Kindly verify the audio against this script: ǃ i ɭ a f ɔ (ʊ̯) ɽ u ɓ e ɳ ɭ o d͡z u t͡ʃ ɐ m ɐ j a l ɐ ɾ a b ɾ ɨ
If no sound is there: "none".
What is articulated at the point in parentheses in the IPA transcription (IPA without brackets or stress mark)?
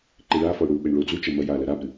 ʊ̯